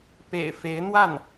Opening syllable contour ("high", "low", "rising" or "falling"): low